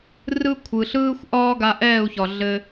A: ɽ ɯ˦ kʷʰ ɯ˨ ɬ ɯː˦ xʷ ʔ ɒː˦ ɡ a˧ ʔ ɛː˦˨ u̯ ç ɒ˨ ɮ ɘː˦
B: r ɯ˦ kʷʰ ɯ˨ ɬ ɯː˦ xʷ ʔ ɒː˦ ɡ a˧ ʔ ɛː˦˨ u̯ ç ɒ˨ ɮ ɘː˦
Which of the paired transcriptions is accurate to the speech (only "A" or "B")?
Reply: B